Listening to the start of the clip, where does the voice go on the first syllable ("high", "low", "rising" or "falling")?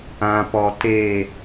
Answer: low